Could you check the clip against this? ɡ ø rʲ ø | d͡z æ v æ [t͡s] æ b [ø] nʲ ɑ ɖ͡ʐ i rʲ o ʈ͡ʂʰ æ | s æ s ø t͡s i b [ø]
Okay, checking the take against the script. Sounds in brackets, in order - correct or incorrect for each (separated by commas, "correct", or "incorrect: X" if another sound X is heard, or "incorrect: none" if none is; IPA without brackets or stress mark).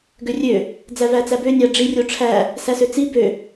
correct, correct, correct